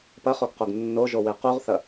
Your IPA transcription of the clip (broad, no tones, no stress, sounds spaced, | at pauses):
p ɐ χ o ɡ q o ɡ nː o ʒ o w e q u ʁ θ ɐ